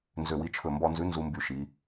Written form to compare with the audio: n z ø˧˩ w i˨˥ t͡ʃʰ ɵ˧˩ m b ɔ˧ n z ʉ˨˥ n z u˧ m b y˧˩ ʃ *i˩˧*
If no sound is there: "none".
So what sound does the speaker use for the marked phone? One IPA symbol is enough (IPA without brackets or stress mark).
i˩˧